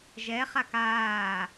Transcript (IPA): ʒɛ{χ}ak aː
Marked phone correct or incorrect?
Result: correct